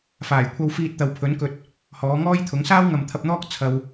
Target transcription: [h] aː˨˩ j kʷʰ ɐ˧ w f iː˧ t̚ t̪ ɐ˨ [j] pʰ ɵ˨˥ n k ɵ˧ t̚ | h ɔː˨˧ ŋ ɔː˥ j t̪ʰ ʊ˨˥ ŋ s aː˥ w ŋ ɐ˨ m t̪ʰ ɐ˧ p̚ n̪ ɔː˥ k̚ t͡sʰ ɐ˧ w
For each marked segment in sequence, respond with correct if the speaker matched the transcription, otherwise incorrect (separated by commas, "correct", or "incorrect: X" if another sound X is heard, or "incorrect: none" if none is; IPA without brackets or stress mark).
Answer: incorrect: f, incorrect: w